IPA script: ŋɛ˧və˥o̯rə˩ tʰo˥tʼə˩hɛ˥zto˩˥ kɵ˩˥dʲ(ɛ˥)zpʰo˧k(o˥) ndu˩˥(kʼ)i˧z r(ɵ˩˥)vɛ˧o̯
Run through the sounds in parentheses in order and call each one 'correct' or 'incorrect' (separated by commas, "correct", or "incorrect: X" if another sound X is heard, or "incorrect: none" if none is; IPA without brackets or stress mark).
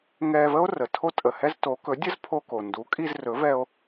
incorrect: ə˥, incorrect: o˩, correct, correct